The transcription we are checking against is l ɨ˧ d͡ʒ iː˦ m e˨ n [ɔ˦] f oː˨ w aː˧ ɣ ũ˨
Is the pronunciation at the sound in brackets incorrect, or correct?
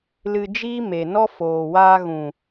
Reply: correct